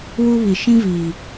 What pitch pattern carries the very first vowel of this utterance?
high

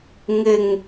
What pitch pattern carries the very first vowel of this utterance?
low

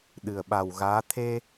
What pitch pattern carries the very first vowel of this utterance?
low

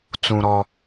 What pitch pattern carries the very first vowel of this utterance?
high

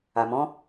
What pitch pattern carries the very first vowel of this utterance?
low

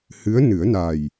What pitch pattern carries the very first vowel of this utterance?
rising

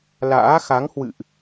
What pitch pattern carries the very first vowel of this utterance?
rising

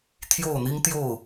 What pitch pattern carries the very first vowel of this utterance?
falling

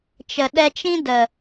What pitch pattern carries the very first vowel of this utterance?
low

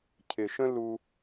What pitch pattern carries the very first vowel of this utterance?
low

